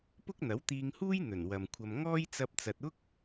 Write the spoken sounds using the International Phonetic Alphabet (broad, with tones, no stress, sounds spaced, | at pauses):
p ʊ˥ k̚ n̪ ɐ˨˥ w t̪ iː˧ ŋ h uː˥ j n̪ ɵ˨˩ n w ɐ˨ m kʷʰ ɐ˧ m ŋ ɔː˥ j t͡s ɐ˧ p̚ t͡s ɐ˨ t̚ ʊ˥ k̚